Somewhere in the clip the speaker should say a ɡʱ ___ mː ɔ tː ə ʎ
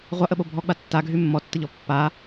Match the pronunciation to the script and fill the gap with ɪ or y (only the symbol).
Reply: y